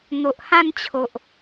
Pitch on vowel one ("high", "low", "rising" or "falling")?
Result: low